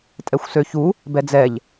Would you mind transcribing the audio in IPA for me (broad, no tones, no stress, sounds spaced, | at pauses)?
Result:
tʼ ɛ xʷ s ø ç u | b ɛ d͡z ɛ ʎ